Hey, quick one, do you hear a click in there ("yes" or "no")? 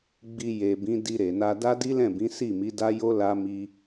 no